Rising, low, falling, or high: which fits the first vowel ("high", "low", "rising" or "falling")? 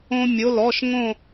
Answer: high